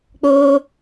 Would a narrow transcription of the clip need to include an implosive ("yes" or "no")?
no